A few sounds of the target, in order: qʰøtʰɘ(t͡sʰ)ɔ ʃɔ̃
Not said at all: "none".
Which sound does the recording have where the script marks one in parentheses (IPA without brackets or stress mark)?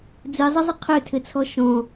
t͡sʰ